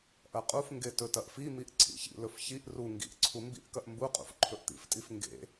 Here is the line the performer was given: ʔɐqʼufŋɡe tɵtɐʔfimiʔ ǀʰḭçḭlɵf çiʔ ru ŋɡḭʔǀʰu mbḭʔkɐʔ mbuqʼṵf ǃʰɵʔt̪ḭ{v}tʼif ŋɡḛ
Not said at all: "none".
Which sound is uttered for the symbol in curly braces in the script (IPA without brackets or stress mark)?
f